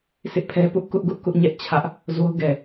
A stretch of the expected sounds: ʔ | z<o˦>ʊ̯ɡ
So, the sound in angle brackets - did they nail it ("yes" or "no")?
yes